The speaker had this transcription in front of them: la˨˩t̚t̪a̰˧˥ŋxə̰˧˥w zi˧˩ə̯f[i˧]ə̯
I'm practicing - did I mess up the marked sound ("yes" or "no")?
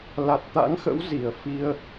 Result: no